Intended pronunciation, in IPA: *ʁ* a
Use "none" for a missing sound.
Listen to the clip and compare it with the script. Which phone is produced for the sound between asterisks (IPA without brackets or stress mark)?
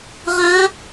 ʁ